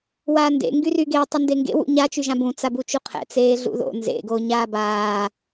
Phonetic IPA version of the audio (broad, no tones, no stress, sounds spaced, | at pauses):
w aː n d ḛ ŋ ɡ y r y ɡ e tˤ y n d e ŋ ɡ ḛ w ṵ ɲ a t͡ʃ y ʒ ã b ũ t͡s a b u t͡ʃ u qʰ ɛ̰ t͡s eː ɮ ṵ ð o̰ n z ḛ ɡ o ɲ aː b aː